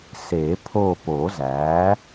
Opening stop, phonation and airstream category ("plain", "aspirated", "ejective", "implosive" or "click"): aspirated